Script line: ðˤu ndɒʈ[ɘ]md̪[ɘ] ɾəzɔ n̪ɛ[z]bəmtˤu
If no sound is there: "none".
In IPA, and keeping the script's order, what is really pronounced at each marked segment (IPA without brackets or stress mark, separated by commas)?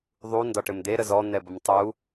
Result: ɘ, e, none